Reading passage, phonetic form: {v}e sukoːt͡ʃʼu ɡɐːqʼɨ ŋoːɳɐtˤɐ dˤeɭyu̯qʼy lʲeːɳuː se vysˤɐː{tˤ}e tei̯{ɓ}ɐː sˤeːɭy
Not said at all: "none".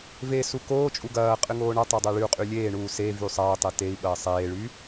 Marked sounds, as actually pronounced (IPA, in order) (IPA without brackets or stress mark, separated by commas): v, tˤ, ɓ